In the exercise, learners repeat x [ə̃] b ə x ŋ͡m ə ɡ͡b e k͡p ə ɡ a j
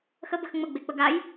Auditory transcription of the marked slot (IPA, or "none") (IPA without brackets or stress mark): ə